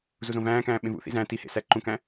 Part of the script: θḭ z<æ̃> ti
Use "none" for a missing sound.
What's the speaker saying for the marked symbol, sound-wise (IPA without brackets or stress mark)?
æ̃